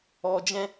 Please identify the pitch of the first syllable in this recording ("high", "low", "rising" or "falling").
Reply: low